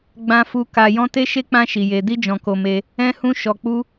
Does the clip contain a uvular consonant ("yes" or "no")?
no